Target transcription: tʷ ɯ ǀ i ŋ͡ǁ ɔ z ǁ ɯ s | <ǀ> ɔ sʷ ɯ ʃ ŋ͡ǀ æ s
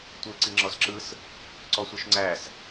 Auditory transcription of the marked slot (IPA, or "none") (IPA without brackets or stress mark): ǀ